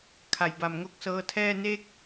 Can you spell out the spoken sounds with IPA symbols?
kʰ a˨˩ j b a˨˩ m ŋ o˦˥ k̚ s ɤː˧ tʰ ɛː˥˩ n e˥˩ k̚

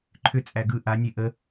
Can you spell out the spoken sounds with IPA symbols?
ǃʰ ʏ t͡sʼ æ ɡ ɯ ʔ a nʲ e ʔ ə

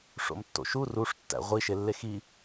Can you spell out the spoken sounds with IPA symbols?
ʂ o̰ m tː o̰ ʃ u r u ʂ tː æ̰ ʁʷ i ʃ e lː e x i

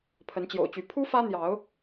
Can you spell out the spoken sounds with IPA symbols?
pʰ ə˨˦ n t͡ɕ j o̰˨˩ ʊ̯ t͡ɕ y˨˦ pʰ u˦ f ä˦ n̪ j ɑ˨˦ ʊ̯

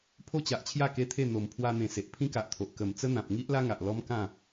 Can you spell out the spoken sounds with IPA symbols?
pʰ o˦ t͡ɕ a˨ ʔ t͡ɕʰ j a˥˧ k e˦ t̪ʰ e˥˧ n̪ o˨˩ m pʰ w a˧ n̪ ẽ˨˩ s e˨ ʔ pʰ ĩ˦ k a˨ ʔ t̪ʰ o˨ ʔ k ə˨˩ m t͡s ə˦ n̪ ã˨ p̚ ŋ i˦ ʔ l a˦ ŋ a˨ ʔ l ɔ˦ m k ã˥˧

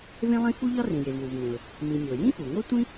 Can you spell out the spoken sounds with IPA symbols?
v ẽ˥ lˠ ĩ˥ f u˥ ʎ ɒ˥ r ĩ˩ j e˩ v w u˩ v ŋ ẽ˩ ʊ̯ | m ĩ˩ mʲ o˩ j ĩ˥ f u˩ ŋ o˥ tʷ ĩ˥

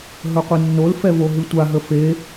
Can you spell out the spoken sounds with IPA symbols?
ɦ ɵ qʷ ɨ nː o l f ɛ v o ɦ ɨ tʷ a ɦ ə f e

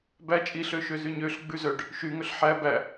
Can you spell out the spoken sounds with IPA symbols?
b æ t͡ʃʼ i ɬ ø ʃ ø z y ɲ ø ɬ ɡ͡b ʉ z œ ɖ | ʃ y ŋ ɵ ɬ ħ æ b æ

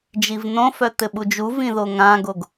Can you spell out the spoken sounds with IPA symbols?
d͡ʒ i v n̪ õ f œ t̪ ɘ ɓ u d͡ʒ u v ĩ ð o ŋ ã ɡ o ɡ

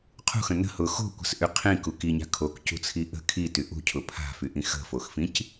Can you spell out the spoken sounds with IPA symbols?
qʰ ṳ x ə̃ n ə̤ h ʊ x o̤ kʷ ə̤ s ʔ y qʰ ĩ k u k i ɲ a̤ kʰ o k c ṳ t͡sʰ i ʔ ə̤ kʰ i t y ʔ ṳ cʰ ʊ pʰ a̤ f y ʔ ĩ x ə̤ f o x f ĩ c

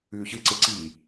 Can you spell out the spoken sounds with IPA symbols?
ʉː ç ɨ ǀ e ǀ iː

